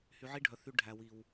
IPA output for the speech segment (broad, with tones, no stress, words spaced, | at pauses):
hy˧ʕi˦ɖʱœ˨θy˧ ɖʱæ˨wi˨w